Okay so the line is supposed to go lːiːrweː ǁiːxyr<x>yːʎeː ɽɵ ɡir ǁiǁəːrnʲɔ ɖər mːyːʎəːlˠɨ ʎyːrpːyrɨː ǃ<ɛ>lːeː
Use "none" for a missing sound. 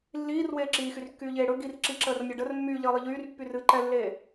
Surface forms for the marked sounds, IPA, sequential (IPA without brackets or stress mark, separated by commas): kː, ɛ